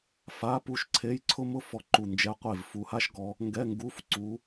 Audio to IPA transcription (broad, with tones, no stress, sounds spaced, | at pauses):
f a˧˥˧ p u˥˧ ʃ ǀʰ e˧˥˧ j ǀʰ ʊ˥ m ʊ˥ f ɔ˨˩ ǃ u˨˩ n d͡ʒ ɛ˨˦ qʷ e˨˩ v f u˨˦ h a˥ ʃ ɡ ɔ˨˦ | ŋ ɡ ɛ˧˥˧ ŋ ɡ u˧˥˧ f ǀ u˨˦